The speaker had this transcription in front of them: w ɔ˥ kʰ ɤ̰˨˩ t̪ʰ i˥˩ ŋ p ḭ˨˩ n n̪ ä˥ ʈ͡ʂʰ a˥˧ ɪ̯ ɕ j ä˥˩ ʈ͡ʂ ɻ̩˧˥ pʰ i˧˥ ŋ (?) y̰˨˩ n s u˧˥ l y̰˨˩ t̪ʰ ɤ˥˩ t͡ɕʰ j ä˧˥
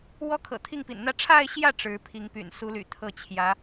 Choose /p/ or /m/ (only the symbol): p